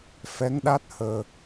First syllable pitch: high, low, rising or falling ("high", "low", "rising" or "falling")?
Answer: rising